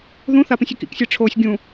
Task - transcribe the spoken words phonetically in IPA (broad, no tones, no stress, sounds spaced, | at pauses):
ð ũ θ a p ĩ sʲ e k ḭ k sʲ e ʈ͡ʂʰ oː sʲ ɡʲ ũ